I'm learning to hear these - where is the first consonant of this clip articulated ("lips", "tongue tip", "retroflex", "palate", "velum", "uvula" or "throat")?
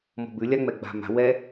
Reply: lips